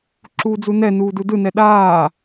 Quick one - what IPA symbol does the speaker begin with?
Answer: ǁ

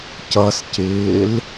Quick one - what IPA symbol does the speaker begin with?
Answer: c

